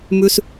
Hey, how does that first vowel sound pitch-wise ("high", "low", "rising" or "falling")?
high